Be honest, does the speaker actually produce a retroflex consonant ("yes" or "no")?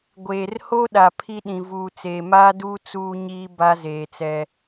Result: no